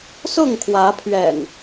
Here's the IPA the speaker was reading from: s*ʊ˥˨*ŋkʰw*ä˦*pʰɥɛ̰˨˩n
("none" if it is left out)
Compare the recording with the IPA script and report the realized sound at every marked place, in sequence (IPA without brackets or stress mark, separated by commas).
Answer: ʊ˥˨, ä˨˦